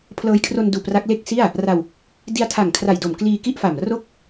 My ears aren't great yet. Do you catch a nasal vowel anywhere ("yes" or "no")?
no